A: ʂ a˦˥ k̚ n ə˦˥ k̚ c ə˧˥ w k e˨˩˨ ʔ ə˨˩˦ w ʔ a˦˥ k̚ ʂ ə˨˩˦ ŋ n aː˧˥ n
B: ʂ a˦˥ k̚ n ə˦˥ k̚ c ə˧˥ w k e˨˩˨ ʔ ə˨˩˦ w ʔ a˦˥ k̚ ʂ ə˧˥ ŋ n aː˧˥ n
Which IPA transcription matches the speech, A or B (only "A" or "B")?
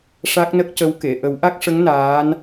B